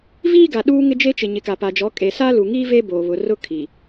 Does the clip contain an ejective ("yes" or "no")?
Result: yes